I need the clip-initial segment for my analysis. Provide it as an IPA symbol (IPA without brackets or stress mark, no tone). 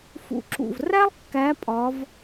f